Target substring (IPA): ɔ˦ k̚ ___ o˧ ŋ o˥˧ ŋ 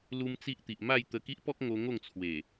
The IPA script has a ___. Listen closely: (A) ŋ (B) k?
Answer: A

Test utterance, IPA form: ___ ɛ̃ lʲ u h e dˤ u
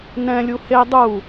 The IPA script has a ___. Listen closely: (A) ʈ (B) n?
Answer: B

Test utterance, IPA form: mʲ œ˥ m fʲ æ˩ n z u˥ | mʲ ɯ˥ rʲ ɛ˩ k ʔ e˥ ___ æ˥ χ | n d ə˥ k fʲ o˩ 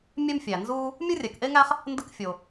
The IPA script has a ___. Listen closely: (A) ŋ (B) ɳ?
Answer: A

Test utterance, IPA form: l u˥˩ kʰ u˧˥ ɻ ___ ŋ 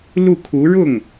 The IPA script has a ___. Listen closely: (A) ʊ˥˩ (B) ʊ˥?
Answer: A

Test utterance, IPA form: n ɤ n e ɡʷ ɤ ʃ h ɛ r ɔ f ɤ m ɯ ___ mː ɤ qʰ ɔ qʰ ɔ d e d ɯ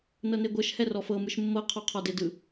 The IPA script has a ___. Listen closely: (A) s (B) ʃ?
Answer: B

